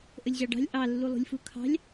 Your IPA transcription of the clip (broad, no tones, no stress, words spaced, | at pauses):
ʔəlʲʑɑɖɑ̤lʲ ʔɑlːulˠṳlʲfu kʰɑ̤lʲ